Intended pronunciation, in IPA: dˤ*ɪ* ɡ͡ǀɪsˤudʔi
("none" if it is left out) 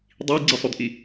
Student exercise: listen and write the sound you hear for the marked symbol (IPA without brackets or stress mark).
i